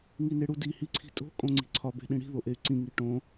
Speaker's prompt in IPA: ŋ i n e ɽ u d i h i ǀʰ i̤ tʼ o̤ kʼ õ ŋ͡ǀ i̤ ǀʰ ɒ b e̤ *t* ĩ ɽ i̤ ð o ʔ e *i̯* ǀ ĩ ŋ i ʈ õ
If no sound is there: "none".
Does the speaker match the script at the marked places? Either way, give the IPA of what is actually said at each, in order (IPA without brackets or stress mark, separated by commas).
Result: ɗ, y̯